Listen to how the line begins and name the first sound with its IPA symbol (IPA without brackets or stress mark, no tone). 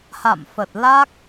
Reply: h